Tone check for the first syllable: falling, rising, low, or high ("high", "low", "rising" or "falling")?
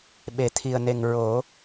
low